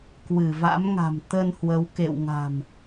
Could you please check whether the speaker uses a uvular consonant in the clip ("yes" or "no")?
no